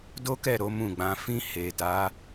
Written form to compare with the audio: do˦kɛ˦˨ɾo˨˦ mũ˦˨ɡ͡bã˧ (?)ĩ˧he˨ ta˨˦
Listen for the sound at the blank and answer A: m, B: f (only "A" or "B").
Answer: B